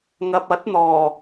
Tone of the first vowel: low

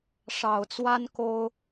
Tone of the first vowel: low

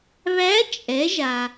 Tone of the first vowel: rising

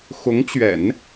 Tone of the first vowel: rising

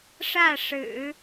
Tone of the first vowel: falling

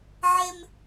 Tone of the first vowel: high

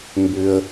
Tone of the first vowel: high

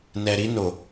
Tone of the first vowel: low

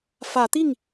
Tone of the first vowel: rising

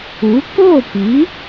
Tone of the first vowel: rising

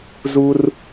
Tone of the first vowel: high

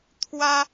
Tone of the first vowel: high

